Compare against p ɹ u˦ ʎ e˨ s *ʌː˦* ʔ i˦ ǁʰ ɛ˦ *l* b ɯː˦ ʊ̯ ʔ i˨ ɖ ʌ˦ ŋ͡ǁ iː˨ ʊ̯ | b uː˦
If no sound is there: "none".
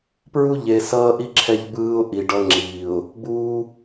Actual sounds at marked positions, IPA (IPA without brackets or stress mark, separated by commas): ʌː˦, ʎ